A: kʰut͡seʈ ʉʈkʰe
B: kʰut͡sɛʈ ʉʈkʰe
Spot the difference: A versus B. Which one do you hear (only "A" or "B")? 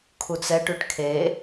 B